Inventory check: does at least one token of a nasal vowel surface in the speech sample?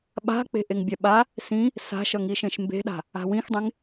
yes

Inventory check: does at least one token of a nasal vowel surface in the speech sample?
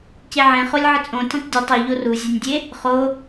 yes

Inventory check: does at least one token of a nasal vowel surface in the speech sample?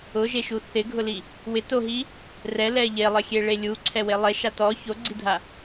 no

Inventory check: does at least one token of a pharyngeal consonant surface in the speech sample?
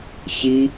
no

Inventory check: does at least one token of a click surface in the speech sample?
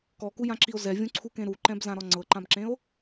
yes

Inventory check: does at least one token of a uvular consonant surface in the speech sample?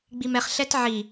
yes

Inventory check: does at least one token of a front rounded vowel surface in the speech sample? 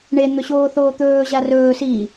no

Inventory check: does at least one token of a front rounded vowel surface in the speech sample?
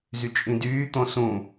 yes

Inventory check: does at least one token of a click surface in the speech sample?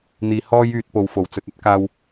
no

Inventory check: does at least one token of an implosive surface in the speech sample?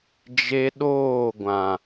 yes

